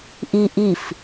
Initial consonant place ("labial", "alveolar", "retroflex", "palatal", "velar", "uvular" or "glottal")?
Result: glottal